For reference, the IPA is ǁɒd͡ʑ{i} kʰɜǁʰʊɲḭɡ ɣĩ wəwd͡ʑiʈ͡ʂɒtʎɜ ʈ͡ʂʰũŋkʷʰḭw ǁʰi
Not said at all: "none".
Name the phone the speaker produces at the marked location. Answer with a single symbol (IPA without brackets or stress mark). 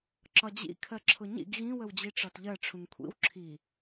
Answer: ḭ